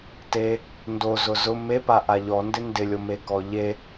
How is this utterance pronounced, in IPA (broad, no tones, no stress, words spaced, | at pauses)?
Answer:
te | ndozʊ zʊ mepa ʔaʎɔndɪ ndɪlʲome kɔʎe